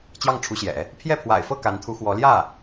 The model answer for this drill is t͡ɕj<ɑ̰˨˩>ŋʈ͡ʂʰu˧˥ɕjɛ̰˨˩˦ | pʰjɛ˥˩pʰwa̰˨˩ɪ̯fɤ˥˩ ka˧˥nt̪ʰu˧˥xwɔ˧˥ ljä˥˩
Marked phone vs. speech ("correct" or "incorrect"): incorrect